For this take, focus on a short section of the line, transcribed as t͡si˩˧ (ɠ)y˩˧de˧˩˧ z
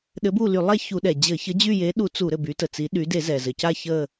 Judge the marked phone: incorrect: ɗ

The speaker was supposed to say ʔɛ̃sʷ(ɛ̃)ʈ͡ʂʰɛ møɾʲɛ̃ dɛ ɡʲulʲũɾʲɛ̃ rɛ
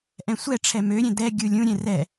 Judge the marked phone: incorrect: ɛ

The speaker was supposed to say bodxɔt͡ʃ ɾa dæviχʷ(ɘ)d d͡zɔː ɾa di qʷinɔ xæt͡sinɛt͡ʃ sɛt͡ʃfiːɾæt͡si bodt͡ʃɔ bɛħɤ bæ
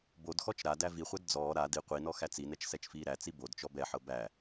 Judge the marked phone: incorrect: ɛ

